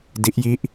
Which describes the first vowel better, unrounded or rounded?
unrounded